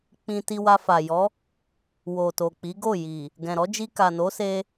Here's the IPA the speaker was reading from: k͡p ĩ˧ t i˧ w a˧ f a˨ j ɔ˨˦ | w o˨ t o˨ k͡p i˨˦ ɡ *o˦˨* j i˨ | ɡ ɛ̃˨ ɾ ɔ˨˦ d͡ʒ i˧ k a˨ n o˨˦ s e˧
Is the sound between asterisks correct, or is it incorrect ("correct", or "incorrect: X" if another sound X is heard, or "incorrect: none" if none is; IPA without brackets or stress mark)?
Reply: correct